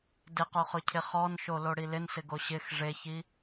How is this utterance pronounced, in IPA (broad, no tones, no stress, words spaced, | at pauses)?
dɪqoχʊcʰɪ χɔnʃoloɽi lɪnsɪɡo ɕɪx ʐeçi